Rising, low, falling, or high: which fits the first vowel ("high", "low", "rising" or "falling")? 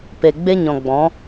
low